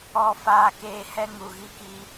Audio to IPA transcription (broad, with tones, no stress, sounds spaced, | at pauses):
ɔ˦˨ f aː˦ k eː˦ h ɛ˦ ŋ u˨ ɣ i˦ k i˦